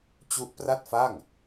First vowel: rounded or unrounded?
rounded